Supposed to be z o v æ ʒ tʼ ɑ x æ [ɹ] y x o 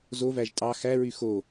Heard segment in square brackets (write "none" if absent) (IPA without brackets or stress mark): ɹ